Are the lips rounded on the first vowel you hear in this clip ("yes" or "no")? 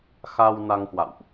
no